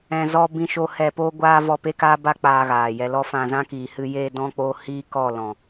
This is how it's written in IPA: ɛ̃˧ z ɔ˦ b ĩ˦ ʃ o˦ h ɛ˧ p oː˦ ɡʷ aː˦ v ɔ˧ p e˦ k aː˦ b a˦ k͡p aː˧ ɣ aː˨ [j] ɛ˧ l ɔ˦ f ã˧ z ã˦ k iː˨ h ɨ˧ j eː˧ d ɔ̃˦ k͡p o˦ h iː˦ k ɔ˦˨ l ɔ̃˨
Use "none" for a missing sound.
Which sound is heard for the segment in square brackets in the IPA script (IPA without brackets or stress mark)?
j